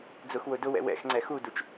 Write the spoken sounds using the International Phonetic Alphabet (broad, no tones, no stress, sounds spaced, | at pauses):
d͡z ʊ x w ʊ d ʊ w ɛ̰ w ɛ̰ x ŋ͡ǀ ɛ x u d u t͡ʃ